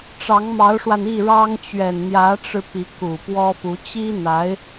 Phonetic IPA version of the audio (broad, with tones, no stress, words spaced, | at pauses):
ʈ͡ʂɑ˧˥ŋmɑ˧˥ʊ̯ʂwa˧n i˥˩ɻɑ˥ŋ t͡ɕɥɛ˨˩nn̪jä˧˥ʈ͡ʂɻ̩˧ pi˧˥ku˨˩pwɔ˥fu˧˥ t͡ɕi˥n̪a˧˥ɪ̯